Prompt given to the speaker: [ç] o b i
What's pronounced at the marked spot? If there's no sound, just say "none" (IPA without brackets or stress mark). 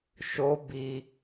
ʃ